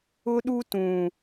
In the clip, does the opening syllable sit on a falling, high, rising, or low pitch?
high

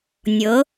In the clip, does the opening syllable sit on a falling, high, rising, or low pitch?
rising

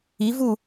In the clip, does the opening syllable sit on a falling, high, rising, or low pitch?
rising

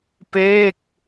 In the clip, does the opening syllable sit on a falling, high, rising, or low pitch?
falling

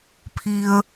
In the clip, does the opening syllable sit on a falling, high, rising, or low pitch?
low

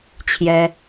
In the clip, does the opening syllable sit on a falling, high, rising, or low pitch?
high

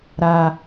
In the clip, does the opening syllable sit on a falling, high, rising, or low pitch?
high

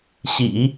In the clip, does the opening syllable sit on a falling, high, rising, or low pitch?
low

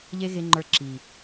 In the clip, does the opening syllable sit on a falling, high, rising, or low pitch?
high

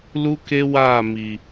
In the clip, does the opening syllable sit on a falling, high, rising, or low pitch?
high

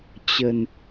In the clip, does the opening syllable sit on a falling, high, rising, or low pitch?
low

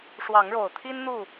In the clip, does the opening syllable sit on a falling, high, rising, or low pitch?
rising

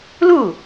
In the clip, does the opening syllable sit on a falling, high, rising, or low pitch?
falling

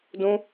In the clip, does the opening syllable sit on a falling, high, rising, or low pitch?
high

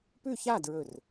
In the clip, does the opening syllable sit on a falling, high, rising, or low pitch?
falling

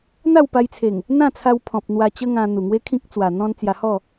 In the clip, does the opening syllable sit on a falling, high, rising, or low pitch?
falling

